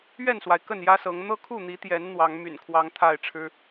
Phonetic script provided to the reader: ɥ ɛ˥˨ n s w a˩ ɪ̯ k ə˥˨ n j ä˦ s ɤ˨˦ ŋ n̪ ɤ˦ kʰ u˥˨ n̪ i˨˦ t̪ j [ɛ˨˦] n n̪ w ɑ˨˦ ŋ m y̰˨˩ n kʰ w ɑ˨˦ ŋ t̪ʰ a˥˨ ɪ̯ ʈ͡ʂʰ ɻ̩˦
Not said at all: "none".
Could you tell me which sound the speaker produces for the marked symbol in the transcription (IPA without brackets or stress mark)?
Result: ɛ˨˦